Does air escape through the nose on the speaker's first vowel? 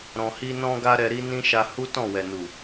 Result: yes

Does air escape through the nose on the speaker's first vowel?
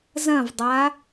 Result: yes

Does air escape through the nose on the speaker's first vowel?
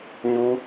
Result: no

